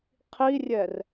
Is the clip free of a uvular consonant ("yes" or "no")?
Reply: no